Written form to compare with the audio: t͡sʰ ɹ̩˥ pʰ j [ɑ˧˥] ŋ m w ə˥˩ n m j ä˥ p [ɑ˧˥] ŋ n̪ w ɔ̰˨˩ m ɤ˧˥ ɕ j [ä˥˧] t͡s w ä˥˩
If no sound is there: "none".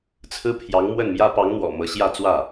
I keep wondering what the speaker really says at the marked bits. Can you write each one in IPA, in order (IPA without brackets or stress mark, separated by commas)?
ɑ˧˥, ɑ˧˥, ä˥˧